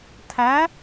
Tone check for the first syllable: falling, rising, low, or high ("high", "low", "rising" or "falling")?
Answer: rising